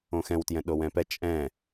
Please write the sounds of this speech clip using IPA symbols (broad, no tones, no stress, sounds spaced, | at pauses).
õ x ɛ̃ w t j ɛ̃ ɗ o w ɛ̃ p ɛ t͡ʃʼ ɛ̃